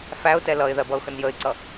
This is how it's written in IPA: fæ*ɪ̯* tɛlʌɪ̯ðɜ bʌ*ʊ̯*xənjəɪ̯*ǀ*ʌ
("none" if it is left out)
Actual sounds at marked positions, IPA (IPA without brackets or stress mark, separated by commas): ʊ̯, ʊ̯, ǀ